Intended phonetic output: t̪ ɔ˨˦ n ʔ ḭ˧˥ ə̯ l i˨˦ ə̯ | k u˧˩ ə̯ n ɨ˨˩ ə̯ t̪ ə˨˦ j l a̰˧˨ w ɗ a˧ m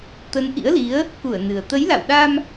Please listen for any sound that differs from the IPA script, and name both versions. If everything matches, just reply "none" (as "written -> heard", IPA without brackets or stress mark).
ɔ˨˦ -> ə˨˦